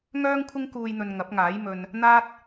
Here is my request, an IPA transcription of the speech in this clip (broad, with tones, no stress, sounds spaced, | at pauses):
ŋ œː˥ ŋ kʷʰ ɪ˥ ŋ k uː˧ j n̪ ɵ˨ n ŋ ɐ˨˥ p̚ ŋ aː˨˥ j m ɵ˧ n | n̪ aː˥ t̚